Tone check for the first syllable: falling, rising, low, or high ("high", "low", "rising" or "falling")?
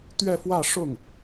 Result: falling